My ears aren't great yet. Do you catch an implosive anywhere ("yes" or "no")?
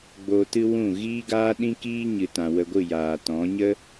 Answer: yes